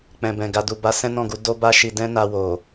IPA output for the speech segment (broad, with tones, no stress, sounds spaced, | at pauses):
k͡p ɛ̃˨ b ɛ̃˨ ɡ a˨ d u˨ b a˨˦ s ɛ̃˦ n ɔ̃˦˨ ɡ u˨˦ d o˦ b a˦ ʃ i˧ d ɛ̃˦ n a˧ w o˨